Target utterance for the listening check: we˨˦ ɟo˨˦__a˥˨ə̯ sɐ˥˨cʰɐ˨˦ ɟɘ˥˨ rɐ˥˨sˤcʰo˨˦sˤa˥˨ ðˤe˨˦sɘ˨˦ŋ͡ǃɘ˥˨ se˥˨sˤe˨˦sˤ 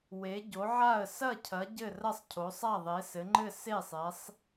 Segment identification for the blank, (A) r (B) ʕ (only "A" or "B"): B